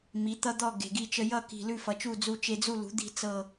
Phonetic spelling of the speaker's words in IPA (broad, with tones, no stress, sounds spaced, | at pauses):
m i˩˥ t̪ ʌ˦ d̪ ɔ˦˨ ɡ e̤˨ ɡ i˦˨ t͡ʃ ə˦ j ʌ˦˨ k i̤˨ l ʉ˦˨ f ʌ˩˥ t͡ʃ u˦˨ d͡z u˦ t͡ʃ e˦ d͡z u˦˨ l ṳ˩˥ d̪ i̤˦˨ t͡s ɤ˦˨